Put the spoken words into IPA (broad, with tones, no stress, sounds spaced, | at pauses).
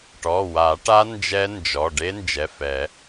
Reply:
ʈ ɔ˩˧˩ w a˨˩˦ ʈ a˦˥ n d͡ʒ ɛ˦˥ n d͡ʒ ɔ˩˧˩ ɖ e˦˥ n d͡ʒ ɛ˩˧˩ f ɛ˨˩˦